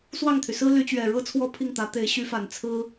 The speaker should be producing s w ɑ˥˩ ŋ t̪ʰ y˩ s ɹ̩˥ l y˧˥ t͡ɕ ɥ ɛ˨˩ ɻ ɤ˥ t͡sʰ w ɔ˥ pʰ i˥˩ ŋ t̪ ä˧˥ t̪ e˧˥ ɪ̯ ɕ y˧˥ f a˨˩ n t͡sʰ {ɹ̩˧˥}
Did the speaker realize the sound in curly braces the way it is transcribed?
no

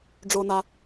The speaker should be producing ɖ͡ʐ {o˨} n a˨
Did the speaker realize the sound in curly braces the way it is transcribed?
yes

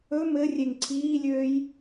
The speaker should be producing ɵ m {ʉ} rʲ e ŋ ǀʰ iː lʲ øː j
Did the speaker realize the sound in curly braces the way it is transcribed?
no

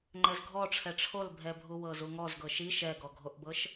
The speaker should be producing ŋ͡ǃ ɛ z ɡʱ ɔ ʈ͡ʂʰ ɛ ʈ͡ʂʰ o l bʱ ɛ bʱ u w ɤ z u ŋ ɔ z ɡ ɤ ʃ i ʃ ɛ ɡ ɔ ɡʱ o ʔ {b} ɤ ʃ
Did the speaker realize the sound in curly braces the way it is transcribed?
yes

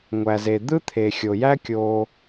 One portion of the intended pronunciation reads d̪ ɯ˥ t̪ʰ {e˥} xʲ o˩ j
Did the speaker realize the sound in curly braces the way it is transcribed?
no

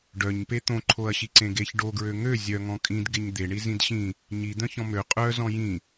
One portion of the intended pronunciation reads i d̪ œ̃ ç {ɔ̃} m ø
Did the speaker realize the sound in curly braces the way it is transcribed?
yes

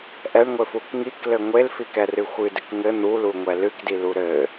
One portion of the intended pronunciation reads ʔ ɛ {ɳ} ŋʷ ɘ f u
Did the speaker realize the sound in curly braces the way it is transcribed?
yes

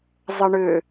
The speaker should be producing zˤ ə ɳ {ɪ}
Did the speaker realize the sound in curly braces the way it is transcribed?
no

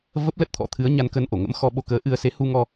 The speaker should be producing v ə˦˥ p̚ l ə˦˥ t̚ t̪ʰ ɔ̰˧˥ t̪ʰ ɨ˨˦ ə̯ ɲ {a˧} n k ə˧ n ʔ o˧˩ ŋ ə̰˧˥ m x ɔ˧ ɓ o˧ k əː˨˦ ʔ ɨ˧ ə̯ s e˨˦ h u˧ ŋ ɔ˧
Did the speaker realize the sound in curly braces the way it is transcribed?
yes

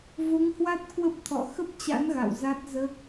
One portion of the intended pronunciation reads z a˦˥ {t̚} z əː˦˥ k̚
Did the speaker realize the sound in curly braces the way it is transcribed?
yes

